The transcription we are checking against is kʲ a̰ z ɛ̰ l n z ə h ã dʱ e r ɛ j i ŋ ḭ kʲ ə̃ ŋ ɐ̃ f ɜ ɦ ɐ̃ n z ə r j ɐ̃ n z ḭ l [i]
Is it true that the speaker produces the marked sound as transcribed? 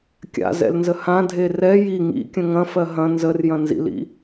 no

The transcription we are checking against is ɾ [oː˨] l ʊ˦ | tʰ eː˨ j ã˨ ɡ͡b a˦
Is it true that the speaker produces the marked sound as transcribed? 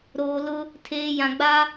yes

